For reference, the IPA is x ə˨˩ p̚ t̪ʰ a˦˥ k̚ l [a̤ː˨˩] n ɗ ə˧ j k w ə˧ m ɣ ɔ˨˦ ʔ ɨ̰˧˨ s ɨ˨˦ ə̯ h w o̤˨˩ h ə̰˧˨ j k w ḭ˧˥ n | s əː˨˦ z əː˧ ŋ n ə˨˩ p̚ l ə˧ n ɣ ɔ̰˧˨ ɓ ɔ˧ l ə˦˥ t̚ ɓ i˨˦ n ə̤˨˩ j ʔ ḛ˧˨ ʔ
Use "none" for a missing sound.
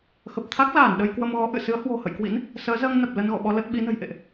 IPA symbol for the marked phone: aː˧˩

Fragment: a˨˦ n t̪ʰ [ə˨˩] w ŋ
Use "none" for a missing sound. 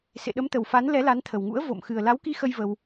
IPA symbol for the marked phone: ə˨˩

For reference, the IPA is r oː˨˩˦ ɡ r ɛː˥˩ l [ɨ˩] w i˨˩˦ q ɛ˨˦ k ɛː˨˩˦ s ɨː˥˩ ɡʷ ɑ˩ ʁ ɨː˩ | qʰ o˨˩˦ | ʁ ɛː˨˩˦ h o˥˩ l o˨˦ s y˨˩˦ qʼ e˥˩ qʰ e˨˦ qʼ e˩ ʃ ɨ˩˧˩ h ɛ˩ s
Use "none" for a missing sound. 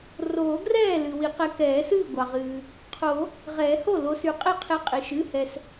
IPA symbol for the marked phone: ɨ˩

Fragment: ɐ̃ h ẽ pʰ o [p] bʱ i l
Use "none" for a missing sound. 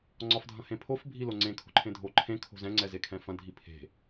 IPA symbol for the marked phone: f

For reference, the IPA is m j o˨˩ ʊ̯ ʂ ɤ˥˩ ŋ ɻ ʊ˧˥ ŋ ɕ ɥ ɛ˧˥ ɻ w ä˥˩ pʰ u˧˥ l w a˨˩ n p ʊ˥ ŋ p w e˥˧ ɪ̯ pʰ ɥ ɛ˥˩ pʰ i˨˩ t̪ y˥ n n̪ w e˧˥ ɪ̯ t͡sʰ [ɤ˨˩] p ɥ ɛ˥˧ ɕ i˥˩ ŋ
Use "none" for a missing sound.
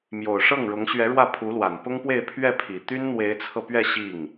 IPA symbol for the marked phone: ɤ˧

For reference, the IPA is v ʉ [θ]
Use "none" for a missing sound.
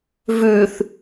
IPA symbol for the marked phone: θ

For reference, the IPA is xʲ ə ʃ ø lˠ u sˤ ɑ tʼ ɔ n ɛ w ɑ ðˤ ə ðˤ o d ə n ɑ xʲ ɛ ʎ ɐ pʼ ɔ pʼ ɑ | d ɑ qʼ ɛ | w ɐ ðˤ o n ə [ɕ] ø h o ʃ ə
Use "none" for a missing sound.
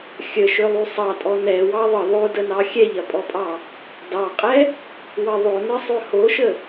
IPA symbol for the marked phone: sˤ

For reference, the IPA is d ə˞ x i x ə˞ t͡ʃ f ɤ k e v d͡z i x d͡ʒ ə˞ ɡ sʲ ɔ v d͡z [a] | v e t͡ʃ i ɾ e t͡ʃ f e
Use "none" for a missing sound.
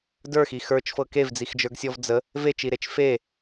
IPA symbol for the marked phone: ə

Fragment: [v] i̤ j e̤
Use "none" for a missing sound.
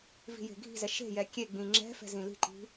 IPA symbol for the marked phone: v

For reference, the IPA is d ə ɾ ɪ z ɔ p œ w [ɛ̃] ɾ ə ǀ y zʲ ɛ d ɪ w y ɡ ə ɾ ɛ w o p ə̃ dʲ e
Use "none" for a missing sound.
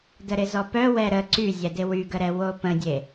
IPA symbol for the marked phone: ɛ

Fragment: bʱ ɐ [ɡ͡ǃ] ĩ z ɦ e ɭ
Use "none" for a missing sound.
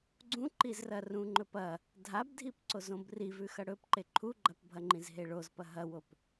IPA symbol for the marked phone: ŋ͡ǃ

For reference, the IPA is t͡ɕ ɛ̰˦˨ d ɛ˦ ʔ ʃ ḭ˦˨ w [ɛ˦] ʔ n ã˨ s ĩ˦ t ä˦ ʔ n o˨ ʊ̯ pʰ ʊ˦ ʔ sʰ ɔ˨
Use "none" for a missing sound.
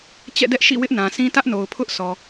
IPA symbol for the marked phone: ɪ˦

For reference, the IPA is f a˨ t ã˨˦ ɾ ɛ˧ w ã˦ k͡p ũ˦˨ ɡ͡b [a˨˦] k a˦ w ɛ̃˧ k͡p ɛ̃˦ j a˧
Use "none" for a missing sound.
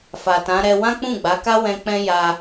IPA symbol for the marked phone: a˨˦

